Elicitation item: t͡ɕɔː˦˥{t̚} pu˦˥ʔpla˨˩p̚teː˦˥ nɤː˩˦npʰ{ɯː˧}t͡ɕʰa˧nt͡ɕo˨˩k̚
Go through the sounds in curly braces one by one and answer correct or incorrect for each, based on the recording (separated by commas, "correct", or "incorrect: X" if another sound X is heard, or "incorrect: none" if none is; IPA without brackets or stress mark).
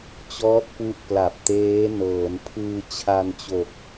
correct, correct